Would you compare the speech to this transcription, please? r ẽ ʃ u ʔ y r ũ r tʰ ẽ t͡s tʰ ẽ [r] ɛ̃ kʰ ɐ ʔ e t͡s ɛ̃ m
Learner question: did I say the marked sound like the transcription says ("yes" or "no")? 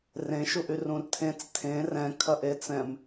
yes